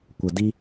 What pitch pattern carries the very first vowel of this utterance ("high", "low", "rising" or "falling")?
low